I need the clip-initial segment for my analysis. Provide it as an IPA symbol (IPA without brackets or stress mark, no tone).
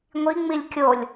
ŋʷ